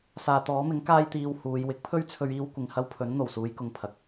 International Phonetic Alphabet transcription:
saː˨t̪ɔː˨˥mɪ˨˥ŋ kaː˧jt̪iː˨w huː˨˧j wɪ˨˥k̚pʰɵ˥ɥt͡sʰɵ˧ɥ iː˧wkʷɪ˨ŋhɐ˧wpʰɵ˨˥n n̪o˨˩wsuː˨˧jkʊ˨ŋ pʰɐ˨k̚

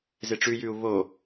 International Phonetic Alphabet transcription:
zeʈ͡ʂʉjʉu̯ βo

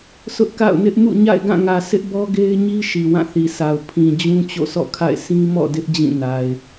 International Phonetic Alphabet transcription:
sʊ˦ʔka̰˦˨ʊ̯nɪ˦ʔ mṵ˦˨ɲa̰˦˨ɪ̯ɡã˦˨ŋä˨ sɪ˦ʔbɔ˦ɡe˦ɪ̯ɲi˦ ʃi˨wã˦˨θi˨sʰa˨ʊ̯ pʰĩ˨d͡ʑũ˦ t͡ɕo̰˦˨sʰɔ̰˦˨kʰa̰˦˨ɪ̯ sĩ˦mɔ̰˦˨dɪ˦ʔ d͡ʑĩ˦˨na˨ɪ̯

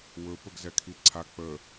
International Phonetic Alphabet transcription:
wɵ pəɡzɛkʰiǀʰa k͡pə

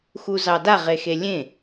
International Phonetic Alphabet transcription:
xuzɑda ʁexelʲẽ

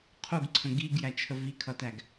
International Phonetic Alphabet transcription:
qʰuɡǀʰə̃ ɡiɡjæt͡ʃʰə vikʰʌtæɡ

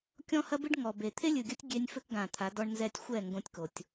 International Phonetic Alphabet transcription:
kʲɔ̃˦hɐ˦bɨ˦ɖ ŋɔ˨be˨ t̪ʰe˦lʲɨ˨ɡʲɐ˦tʲ ɡʲe˦nʲ fɘ˦kɡã˨t̪ʰa˨˦ dɔ˦ɳnzɛ˦˨tʲ xʷɛ˦˨ ŋɡõ˦tʲko˨tʲ

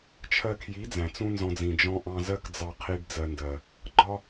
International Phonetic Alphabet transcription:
t͡ʃʰɜ˧kʰji˨˦ d͡zæ̃˨t͡sũ˦nzɔ̃˧d͡zĩ˨ d͡ʒɔ̃˧ ʔɑ̃˧zɜ˦kd͡zɑ˧ qʰi˧ɖ d͡zɜ˧ndɜ˨ | ɡ͡ǃɒ˦

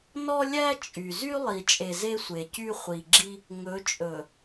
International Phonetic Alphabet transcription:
nɔ˦lʲæ˦ t͡ʃʼy˨ zy˦ lˠi˨t͡ʃʼe˨ ze˦sʷe˨cy˦ χʷi˨ɡ͡ǁi˦ | ŋɵ˨˦t͡ʃʼɵ˨

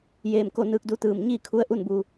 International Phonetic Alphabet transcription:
jeː˧˩mko˥˨nɯː˧k̚du˧˥ t̪ɯː˧˩mɲiː˥˨kʰu˧˥ə̯ʔu˥˨n bu˧

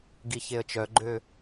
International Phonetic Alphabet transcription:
ɡiçeə̯t͡ʃœɡ͡ǃø

